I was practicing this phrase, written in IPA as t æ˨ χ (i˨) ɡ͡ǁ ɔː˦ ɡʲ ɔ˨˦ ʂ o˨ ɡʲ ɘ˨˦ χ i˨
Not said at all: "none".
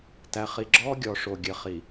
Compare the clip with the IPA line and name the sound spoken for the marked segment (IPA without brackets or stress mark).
i˨